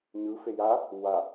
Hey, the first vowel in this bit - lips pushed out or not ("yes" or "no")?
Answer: no